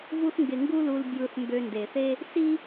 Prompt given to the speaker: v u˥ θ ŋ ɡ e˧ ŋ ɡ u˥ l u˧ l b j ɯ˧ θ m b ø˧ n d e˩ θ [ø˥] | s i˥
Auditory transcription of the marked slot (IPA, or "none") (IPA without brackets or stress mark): e˥